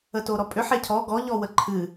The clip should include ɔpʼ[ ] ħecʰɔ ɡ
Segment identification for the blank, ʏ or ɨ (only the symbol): ʏ